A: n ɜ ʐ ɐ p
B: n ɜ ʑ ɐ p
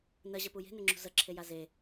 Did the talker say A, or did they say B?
B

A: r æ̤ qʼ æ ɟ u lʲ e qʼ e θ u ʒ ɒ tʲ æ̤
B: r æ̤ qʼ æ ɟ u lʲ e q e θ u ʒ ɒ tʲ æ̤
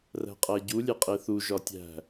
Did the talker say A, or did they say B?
A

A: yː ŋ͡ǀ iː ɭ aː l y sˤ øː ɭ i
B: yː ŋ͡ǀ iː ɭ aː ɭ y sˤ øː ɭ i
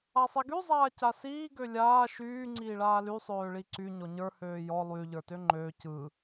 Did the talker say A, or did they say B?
A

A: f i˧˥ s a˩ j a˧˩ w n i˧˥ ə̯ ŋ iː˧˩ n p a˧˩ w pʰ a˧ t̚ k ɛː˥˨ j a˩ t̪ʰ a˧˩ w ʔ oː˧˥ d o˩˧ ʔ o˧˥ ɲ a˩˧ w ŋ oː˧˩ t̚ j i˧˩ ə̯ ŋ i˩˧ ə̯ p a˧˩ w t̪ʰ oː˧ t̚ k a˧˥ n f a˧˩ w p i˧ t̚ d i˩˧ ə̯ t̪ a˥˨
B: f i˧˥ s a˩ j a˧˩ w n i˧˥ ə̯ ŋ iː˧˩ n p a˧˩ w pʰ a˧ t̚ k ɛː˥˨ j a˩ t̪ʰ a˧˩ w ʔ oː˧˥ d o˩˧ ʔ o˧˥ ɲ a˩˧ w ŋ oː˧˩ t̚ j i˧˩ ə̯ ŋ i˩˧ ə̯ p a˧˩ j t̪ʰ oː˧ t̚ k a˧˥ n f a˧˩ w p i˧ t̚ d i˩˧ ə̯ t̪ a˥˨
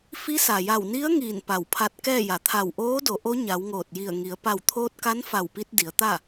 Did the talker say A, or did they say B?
A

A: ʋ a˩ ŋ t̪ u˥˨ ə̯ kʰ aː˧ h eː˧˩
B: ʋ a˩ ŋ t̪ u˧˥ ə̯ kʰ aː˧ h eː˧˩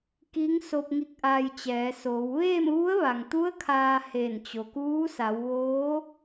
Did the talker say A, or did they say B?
B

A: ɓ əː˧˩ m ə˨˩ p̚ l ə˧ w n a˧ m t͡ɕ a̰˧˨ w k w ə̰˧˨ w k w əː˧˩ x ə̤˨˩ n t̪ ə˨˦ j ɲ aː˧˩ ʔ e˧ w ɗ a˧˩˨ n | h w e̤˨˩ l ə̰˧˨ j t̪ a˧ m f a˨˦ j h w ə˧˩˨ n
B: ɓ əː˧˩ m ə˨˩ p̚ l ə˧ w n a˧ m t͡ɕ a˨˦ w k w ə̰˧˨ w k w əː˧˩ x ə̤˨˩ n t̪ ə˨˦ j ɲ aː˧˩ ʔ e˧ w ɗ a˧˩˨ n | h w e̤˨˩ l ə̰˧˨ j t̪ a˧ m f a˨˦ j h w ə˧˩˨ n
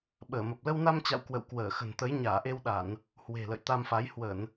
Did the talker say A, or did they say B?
A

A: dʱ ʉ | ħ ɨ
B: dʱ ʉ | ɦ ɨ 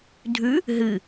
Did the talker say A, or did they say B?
B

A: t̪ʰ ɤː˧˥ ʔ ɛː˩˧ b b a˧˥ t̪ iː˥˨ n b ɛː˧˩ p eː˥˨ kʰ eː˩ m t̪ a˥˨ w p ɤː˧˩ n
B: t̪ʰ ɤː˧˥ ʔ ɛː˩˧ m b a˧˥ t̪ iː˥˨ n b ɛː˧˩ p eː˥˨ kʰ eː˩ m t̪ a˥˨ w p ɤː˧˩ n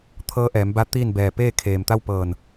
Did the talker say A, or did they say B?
B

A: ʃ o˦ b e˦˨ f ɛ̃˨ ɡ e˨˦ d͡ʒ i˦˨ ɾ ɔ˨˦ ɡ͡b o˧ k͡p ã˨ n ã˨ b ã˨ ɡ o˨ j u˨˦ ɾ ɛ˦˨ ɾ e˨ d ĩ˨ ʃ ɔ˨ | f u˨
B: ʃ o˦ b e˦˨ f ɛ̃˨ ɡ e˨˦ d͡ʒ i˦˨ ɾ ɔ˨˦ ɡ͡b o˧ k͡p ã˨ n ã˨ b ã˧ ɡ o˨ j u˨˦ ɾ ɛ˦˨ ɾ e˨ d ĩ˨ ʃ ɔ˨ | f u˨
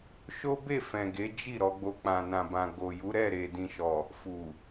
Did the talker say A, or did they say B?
A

